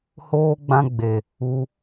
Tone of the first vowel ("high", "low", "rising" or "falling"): high